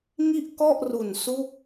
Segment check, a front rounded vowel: absent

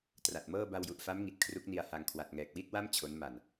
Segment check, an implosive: absent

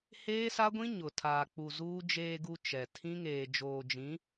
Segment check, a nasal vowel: present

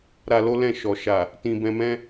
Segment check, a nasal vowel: present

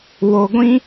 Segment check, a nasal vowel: present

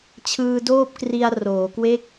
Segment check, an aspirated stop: present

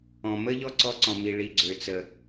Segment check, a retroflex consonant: present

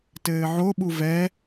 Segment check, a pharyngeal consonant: present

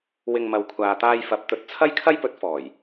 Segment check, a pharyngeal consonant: absent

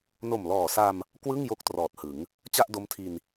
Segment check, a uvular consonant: absent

